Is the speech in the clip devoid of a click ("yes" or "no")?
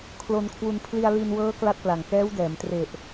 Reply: yes